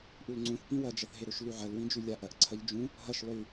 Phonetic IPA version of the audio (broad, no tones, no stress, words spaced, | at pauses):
ʔulŋ͡ǀũθpĩ wɐd͡ʒɐθɦeɾɵʃ lʉʕɐlwĩd͡ʒʉ lʲaʔɐʔǀʰɐʎ d͡ʒũ | ɦɐʃ lˠʉ